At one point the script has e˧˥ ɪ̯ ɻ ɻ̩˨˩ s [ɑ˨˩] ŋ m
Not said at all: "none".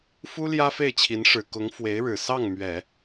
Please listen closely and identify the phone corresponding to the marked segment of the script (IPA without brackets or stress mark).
ɑ˥˩